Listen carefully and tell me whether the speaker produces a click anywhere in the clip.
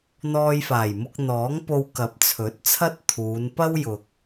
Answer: no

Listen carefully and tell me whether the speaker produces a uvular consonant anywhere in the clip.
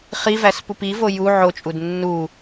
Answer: yes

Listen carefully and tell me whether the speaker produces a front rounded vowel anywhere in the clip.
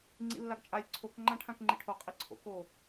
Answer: no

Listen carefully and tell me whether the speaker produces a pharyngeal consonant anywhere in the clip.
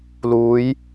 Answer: no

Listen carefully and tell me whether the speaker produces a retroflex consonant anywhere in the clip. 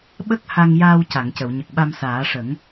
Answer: yes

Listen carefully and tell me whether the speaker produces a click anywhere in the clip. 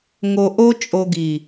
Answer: no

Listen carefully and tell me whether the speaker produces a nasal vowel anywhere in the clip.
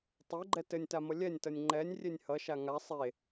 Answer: no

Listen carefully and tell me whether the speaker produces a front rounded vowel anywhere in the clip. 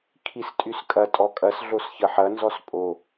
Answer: yes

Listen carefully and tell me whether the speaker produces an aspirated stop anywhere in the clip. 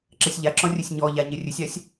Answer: no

